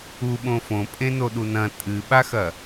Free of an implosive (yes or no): no